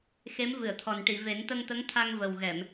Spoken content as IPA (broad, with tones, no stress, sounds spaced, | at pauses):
x e˧˥ m v ɨ˨˩˨ ə̯ t̪ʰ ɔ˨˩ n ʈ i˨˩˨ v e˨˩˦ n t̪ ə˧ ŋ t̪ ə˧˥ ŋ t̪ʰ a˧ ŋ v ə˨˩ w ɣ ɛ˨˩˨ m